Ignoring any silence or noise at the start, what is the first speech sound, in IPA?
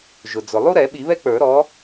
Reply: ʒ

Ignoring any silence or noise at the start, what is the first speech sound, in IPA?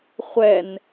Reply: χʷ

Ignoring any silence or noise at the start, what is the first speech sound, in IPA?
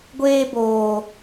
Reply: ɡʷ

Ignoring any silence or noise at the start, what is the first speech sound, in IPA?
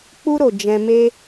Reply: k͡p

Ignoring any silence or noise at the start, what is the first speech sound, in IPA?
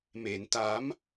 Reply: m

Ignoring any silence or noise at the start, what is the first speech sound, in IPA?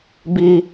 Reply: b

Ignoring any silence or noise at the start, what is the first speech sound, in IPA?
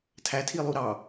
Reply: tʰ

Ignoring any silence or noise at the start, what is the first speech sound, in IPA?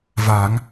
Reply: v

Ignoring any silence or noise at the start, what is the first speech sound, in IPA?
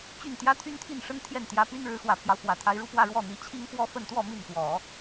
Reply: t͡ɕ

